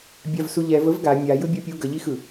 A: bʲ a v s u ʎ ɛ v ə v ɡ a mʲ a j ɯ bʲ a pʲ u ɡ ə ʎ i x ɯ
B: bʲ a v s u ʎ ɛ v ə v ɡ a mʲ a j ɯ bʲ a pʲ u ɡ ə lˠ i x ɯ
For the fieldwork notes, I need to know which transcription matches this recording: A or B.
A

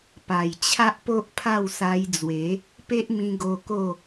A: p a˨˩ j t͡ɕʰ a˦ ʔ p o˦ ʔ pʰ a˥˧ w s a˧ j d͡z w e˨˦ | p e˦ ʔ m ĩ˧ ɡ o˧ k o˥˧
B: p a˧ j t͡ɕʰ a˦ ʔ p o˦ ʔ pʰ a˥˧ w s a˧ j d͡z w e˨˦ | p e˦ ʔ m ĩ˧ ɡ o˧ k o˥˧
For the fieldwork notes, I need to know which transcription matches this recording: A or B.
A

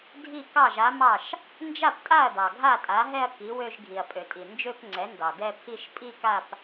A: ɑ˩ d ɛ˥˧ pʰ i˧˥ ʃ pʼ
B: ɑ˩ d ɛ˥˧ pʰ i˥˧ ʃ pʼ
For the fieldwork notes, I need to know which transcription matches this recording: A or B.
B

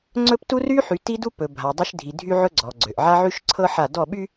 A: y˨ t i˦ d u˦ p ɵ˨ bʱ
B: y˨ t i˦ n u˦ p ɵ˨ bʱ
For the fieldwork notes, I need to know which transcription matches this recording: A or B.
A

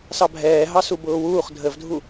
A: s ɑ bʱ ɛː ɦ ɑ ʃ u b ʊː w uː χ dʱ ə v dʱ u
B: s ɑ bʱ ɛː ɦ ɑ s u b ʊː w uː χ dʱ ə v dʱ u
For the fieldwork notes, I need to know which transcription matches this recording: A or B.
B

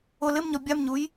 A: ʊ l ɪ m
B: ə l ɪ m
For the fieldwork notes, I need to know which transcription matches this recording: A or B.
A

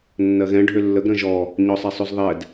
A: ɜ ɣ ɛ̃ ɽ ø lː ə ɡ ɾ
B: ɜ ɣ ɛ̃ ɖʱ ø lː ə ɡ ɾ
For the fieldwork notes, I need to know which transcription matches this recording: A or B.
B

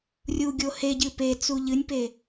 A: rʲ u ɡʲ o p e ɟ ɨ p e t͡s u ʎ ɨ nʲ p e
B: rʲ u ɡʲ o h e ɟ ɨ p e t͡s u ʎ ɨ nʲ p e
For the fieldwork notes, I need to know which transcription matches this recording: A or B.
B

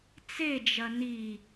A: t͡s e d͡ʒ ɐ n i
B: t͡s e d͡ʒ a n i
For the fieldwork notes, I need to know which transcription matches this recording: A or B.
A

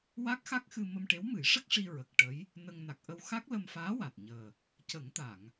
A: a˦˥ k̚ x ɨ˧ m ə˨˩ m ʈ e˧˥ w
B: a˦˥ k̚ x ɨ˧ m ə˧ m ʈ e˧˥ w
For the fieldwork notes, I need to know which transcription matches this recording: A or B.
B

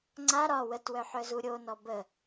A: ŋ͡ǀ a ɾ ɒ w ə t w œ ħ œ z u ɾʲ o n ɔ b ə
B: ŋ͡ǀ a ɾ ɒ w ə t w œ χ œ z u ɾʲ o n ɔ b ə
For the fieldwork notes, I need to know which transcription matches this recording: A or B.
A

